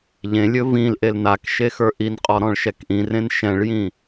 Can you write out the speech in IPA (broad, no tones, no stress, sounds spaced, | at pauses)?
ʎ ẽ lʲ ɵ v ĩ l ʔ e l n a k ʃ e x ə˞ ʔ i n qʼ ɔ ɾ ɔ̃ ɭ ʃ ɛ k ʔ ĩ r ẽ n ʃ ɛ̃ ɭ j ĩ